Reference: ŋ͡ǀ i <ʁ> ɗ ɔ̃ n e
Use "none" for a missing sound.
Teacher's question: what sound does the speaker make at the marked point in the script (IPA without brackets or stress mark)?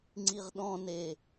ʁ